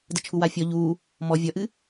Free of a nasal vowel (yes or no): yes